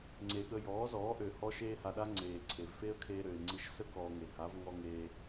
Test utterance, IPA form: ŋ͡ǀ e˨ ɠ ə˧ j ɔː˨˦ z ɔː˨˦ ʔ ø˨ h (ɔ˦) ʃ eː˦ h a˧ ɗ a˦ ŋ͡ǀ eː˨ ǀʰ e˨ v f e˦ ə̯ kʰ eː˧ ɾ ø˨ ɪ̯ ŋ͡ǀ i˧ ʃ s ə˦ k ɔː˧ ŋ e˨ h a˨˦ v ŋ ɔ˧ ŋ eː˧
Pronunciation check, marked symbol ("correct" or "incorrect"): correct